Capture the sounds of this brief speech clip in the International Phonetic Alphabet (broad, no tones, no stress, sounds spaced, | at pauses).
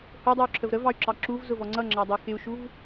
h ʊ dˤ u y̯ ǁʰ ə v ɾ ə v ɑ y̯ ǁ ɑ ǁ u v z ʊ v ɔ ŋ͡ǀ ʌ ŋ͡ǁ ɑ dˤ u x ɪ u̯ ʃ u v